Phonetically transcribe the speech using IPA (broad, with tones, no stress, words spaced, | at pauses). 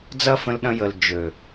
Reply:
d͡zɐ˦fə̃˧lɗɐ̃˧ jə˨l d͡ʒø˨